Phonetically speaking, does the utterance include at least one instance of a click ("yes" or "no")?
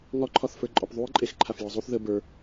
yes